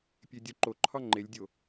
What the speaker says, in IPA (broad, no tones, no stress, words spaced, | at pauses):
pʲedʲoǃoǃʰɒ ŋ͡ǃelʲdʲo